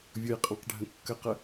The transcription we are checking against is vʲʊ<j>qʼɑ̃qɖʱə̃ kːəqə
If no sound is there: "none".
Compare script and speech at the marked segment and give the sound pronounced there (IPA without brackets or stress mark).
j